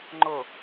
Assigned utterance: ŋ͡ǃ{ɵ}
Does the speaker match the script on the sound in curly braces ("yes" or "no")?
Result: no